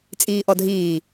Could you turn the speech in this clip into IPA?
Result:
t͡sʼ iː ʔ ɔ dʱ iː

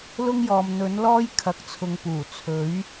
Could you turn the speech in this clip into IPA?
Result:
l ʊ˥ ŋ j ɔː˨ m n̪ ɵ˨˥ n l ɔː˥ j kʰ ɐ˨ k̚ t͡sʰ ʊ˨ ŋ p uː˨˩ t͡sʰ ɵ˨˥ ɥ

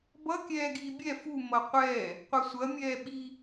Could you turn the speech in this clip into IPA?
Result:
b ʌ kʲ ɛː ɡ iː bʲ ɛ f u m ʌ qʷ ɛː | qʷ ɐ sʷ ɐ mʲ ɛː ɓ i

